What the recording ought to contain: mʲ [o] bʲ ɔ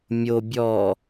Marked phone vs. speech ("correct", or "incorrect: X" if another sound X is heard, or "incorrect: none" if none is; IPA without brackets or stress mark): correct